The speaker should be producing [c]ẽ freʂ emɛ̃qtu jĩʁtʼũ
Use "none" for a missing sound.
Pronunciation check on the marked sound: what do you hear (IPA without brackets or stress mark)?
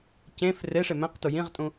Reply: c